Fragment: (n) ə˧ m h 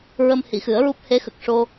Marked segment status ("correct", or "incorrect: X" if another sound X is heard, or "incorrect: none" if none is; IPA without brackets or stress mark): incorrect: ɹ